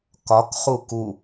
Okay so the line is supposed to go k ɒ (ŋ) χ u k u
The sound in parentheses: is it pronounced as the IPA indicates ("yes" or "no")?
no